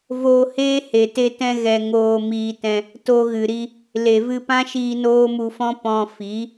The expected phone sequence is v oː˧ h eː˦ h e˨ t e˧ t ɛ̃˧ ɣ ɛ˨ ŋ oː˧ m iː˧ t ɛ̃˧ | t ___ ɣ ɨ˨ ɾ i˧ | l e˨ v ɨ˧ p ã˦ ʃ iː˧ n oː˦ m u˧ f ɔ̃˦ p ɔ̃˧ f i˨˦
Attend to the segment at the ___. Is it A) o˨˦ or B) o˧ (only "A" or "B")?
B